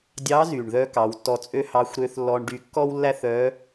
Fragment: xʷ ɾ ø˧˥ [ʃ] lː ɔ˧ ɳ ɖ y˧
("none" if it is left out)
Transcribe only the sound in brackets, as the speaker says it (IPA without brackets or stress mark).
θ